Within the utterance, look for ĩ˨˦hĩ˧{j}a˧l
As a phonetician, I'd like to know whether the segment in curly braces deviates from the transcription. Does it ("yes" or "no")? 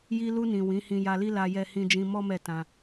no